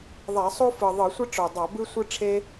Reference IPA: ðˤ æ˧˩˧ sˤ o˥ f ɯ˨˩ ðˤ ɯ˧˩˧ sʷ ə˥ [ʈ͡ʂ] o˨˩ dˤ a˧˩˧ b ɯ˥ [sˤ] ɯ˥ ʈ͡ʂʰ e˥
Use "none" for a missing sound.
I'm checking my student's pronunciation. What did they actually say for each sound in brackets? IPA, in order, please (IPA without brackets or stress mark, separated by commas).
ʈ͡ʂ, sʷ